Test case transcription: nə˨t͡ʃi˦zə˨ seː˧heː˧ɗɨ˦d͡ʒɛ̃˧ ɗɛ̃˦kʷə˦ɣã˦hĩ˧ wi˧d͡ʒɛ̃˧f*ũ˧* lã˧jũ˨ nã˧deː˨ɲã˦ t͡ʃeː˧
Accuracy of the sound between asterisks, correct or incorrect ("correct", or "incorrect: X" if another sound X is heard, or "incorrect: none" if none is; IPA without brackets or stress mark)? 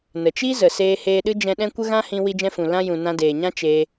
incorrect: ũ˨